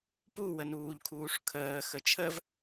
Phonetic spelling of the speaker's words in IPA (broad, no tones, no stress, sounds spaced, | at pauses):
p u w ə n uː ʎ kʰ uː ʂ kʰ əː x ə t͡ʃʰ ə v